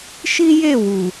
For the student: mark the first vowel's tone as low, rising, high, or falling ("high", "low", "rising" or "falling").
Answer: high